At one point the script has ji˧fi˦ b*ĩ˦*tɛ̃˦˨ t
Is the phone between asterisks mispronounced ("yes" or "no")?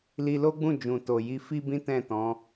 no